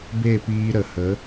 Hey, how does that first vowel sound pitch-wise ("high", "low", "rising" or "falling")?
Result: falling